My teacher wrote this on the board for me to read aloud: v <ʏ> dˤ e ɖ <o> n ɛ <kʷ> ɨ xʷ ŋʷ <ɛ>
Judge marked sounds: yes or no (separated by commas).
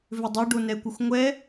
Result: yes, yes, yes, yes